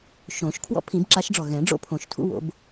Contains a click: yes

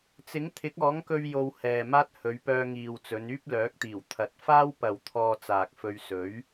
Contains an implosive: no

